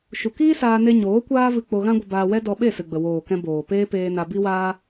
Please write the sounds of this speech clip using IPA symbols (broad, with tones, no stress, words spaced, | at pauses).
ʃu˨kiː˦saː˧ne˧ ɲoː˨˦kʷaː˦vɨ˧ k͡po˧ɣã˦ɡʷə˧ baː˧wɛ˦ dɔ˧ɓe˦˨ sɨ˨ɡ͡bə˨ woː˨kɛ̃˧ boː˨ peː˦peː˧na˧ bi˦waː˦